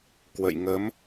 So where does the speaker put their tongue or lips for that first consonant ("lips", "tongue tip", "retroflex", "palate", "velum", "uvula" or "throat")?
velum